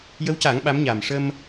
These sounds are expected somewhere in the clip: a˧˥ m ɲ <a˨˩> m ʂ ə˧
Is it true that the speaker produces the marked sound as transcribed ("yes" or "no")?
yes